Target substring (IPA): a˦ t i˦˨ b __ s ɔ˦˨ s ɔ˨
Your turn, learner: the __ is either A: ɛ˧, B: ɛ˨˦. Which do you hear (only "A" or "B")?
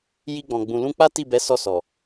B